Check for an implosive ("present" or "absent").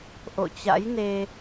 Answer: absent